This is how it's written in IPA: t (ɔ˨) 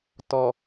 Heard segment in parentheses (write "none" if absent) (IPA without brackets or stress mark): ɔ˨